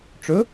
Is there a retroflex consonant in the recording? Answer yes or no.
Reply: yes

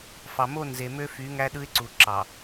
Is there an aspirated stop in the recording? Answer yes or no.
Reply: no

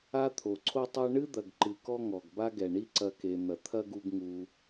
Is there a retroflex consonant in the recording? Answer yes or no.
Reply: yes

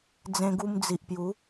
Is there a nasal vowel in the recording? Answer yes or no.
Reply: yes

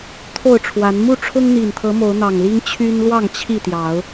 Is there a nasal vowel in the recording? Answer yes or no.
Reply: no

